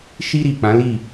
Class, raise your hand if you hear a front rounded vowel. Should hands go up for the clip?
no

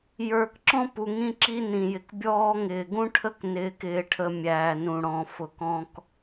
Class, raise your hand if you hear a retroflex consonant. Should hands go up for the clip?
yes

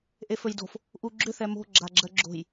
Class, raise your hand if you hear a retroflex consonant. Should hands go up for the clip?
no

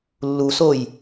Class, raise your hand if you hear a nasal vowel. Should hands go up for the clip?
no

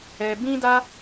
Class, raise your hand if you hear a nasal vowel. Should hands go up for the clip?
yes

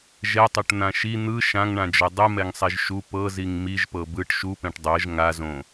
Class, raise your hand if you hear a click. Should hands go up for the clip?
no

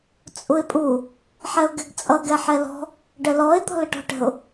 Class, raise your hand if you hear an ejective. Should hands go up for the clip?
yes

